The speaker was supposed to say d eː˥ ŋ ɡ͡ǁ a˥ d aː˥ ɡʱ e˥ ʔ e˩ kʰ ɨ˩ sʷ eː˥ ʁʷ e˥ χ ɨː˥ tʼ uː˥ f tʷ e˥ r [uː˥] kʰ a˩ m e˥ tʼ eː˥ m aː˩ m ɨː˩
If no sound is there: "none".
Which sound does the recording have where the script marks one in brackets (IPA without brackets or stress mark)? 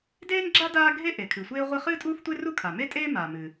u˥